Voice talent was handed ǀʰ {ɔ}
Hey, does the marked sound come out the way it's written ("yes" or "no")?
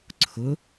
no